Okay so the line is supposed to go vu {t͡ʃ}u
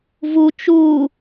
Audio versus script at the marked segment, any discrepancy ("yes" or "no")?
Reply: no